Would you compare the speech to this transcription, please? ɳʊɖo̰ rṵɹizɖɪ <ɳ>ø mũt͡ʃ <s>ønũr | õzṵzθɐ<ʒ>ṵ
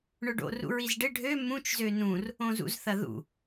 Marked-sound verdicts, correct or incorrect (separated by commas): incorrect, incorrect, incorrect